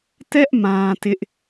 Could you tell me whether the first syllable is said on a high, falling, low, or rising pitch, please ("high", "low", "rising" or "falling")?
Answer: high